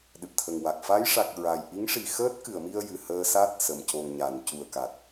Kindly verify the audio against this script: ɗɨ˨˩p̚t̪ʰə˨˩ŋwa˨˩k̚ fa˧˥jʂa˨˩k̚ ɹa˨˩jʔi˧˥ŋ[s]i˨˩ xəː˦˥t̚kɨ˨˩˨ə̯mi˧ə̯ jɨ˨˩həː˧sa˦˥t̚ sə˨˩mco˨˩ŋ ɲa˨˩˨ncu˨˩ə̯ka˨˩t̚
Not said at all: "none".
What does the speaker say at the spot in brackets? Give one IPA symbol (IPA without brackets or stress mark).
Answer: ʂ